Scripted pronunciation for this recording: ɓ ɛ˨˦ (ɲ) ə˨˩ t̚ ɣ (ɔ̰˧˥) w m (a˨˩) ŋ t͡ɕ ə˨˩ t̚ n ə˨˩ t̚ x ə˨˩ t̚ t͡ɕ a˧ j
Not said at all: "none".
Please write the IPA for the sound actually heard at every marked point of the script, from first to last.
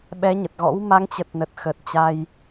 ɲ, ɔ̰˧˥, a˨˦

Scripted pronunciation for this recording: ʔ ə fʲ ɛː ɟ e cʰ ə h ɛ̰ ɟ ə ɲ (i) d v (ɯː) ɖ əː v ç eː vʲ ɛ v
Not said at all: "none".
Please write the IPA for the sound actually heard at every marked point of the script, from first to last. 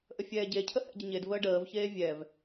e, əː

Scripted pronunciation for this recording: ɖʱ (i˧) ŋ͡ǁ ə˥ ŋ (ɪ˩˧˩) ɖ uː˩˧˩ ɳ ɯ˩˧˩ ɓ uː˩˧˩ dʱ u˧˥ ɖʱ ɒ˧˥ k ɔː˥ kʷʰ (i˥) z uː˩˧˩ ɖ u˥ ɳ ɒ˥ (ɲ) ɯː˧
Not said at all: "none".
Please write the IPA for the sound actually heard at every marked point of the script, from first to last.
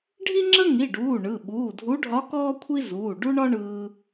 i˥, i˩˧˩, i˥, ɳ

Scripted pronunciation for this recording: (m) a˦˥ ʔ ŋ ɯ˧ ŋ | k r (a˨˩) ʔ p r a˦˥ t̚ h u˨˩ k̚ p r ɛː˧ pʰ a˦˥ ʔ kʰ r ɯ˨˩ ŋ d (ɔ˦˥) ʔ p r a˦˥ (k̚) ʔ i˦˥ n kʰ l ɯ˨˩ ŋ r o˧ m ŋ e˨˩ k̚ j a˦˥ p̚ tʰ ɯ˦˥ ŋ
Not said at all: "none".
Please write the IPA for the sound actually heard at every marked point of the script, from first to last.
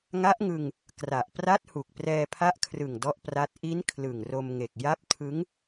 ŋ, a˨˩, ɔ˦˥, t̚

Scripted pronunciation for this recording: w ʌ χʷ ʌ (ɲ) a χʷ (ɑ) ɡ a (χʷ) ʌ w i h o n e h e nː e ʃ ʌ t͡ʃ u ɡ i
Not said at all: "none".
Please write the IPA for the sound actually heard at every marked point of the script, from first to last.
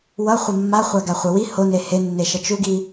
mː, a, χʷ

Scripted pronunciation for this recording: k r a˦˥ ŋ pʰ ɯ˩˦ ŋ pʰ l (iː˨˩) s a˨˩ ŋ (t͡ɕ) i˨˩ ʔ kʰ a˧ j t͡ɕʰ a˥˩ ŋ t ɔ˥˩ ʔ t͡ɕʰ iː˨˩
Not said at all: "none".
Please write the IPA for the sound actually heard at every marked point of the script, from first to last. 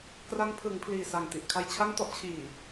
iː˨˩, t

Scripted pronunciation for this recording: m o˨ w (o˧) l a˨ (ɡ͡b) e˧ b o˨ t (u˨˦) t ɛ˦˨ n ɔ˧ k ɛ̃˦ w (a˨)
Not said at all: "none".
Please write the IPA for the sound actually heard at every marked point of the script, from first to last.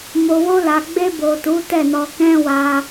o˧, ɡ͡b, u˨˦, a˧

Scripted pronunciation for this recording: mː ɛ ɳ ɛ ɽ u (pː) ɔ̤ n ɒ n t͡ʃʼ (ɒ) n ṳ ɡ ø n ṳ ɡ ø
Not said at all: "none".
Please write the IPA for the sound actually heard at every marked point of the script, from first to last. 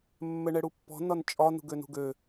pː, ɒ

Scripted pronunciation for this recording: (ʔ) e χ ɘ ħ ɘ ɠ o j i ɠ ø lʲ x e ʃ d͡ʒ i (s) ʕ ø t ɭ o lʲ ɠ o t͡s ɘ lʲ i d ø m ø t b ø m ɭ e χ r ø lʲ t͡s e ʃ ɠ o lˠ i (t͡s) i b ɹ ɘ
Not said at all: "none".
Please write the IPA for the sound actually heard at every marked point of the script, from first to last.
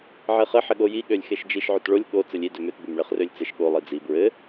ʕ, ʃ, d͡z

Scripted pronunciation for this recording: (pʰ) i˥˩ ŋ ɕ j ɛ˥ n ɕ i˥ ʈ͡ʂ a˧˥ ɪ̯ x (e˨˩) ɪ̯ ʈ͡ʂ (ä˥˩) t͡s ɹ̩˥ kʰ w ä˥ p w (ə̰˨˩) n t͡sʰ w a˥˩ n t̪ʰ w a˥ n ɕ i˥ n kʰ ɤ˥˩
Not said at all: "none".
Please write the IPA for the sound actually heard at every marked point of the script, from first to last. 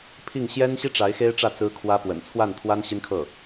pʰ, e˥, ä˥˩, ə̰˨˩

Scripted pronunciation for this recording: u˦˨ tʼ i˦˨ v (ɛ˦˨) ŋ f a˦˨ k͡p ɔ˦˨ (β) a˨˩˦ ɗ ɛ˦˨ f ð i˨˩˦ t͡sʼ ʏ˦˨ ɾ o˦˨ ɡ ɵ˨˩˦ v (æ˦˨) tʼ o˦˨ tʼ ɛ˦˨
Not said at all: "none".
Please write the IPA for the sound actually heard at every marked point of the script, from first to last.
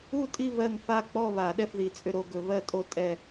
ɜ˦˨, β, ɜ˦˨

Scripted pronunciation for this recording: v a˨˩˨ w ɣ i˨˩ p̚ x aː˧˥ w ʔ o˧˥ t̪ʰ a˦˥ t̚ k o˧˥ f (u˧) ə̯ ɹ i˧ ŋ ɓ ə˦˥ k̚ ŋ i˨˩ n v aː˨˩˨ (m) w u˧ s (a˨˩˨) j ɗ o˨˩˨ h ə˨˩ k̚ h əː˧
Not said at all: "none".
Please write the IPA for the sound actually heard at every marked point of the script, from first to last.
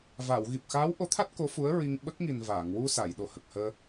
u˧˥, ŋ, a˨˩˨

